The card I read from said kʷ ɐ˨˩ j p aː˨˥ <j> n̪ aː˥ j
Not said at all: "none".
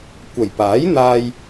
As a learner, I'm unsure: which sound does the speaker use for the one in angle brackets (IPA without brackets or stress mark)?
j